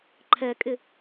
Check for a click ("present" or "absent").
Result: present